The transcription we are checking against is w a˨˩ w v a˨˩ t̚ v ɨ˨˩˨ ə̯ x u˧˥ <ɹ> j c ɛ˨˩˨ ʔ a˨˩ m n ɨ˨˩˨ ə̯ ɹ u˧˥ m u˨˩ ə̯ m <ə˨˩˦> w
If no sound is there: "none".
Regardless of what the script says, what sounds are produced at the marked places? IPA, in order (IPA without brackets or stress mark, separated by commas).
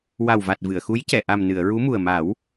none, a˨˩˦